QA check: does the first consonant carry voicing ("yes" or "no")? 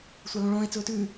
no